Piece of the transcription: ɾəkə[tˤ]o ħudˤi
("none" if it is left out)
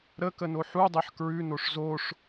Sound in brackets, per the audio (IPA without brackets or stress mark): n